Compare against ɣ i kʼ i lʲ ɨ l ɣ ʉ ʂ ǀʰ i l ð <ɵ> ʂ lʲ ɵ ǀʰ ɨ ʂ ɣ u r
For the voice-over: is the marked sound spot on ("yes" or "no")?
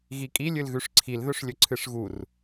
yes